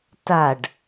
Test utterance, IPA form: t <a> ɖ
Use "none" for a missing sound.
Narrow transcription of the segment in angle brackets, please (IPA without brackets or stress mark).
a